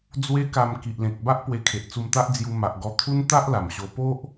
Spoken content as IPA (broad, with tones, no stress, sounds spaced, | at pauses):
d͡z w e˦ k a˧ m k i˨ ʔ l ẽ˨ k̚ b a˦ ʔ p w e˧ kʰ e˨ ʔ t͡s u˧ m t̪ a˦ ʔ d͡z j u˧ m a˨ ʔ ɡ ɔ˧ t̪ʰ u˦ n t̪ a˦ ʔ l a˨˩ m ɕ o˧ p o˦ ʔ